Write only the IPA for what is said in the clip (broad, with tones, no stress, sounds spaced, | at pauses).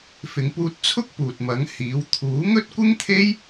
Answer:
f ɪ˨˧ ŋ p uː˧ t̚ t͡sʰ ʊ˥ k̚ p uː˨ t̚ m ɐ˨˥ ŋ h iː˨˥ w t̪ʰ uː˨˥ ŋ ɵ˥ t̚ kʷ ɪ˥ ŋ t̪ʰ e˥ j